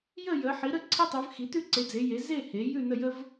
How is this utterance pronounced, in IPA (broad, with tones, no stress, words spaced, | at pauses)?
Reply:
jə˥˧jə˨˦ ħi˨˦ɾə˥˧ ǀʰe˥tˤʉ˨˦vxi˨˦ tʉ˥˧ǀe˨˦d͡ze˨˦je˨˦ ze˥˧he˨˦ jʉ˥˧nə˥˧jə˥v